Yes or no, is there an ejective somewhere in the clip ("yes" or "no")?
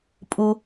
yes